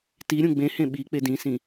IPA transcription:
ti ɾʲũɡ͡bẽhẽ ɓi k͡pedĩsĩ

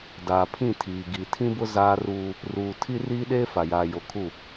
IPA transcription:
daː˨pʰĩ˦˨tʰiː˨ ɡi˨ tʰĩ˦bʊ˦ zaː˦ruː˦ | ruː˨ tʰi˦riː˦ɗeː˦ fa˨jaː˨ jo˨kʰu˦˨

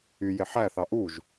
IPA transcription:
y jeħæθɑ ʔuʒ

